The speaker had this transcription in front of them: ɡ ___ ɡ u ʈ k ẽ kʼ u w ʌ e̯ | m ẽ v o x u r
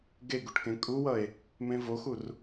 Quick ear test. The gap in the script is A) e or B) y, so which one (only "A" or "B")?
A